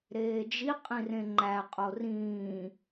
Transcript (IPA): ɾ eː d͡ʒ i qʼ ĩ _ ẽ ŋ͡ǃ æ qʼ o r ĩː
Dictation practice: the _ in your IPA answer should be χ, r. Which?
r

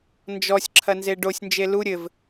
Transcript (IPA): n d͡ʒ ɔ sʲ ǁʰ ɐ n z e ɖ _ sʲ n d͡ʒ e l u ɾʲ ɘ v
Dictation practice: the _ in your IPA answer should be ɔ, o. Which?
o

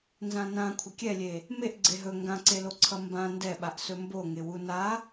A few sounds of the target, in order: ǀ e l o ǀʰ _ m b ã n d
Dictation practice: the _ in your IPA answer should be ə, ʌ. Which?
ʌ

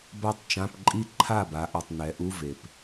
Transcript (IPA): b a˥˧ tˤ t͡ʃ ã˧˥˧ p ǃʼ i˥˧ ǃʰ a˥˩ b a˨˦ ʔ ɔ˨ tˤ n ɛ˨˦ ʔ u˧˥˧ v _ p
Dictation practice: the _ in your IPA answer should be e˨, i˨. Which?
e˨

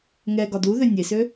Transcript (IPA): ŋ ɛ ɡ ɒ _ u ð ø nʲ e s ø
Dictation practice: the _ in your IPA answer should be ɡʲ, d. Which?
d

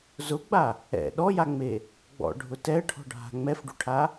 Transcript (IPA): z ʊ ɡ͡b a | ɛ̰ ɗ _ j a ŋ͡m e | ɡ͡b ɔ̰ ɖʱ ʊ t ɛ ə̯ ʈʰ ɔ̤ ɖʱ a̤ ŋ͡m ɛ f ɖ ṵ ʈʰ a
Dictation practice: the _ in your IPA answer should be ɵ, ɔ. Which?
ɔ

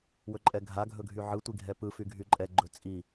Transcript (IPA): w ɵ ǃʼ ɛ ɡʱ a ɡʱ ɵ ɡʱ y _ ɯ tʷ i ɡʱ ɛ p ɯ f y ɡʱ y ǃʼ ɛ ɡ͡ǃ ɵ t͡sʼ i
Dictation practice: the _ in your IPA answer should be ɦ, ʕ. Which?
ʕ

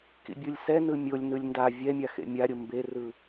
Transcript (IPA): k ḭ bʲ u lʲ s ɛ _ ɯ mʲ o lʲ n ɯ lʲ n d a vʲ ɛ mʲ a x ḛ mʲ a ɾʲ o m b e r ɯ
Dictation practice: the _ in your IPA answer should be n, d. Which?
n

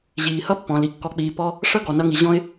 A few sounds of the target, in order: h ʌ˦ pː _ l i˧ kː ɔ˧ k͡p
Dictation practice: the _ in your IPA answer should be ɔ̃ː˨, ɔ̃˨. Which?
ɔ̃˨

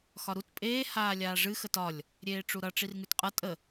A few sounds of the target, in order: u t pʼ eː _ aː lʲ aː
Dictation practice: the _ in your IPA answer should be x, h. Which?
h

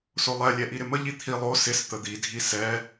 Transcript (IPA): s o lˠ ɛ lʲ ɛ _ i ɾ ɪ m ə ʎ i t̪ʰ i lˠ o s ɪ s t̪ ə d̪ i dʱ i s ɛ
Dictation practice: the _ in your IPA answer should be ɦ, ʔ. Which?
ʔ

